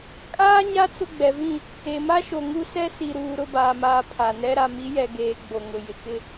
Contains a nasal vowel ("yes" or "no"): yes